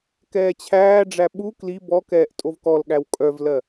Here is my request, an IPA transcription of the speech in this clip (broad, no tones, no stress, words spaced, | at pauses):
kɛːt͡ɕʰæːɖ͡ʐæ ɓu kli bɔkɛːʔ tʼovkɔlɠæw kʼœvlɜ